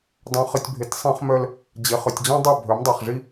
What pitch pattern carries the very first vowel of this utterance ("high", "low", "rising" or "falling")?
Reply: low